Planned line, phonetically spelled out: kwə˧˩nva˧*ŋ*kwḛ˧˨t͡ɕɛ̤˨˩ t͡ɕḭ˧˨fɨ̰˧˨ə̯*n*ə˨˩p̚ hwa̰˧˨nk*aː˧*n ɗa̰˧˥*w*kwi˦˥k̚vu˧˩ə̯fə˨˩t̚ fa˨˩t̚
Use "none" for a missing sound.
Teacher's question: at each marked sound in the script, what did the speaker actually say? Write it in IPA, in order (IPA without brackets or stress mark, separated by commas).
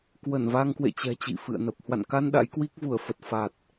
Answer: ŋ, n, a˧, j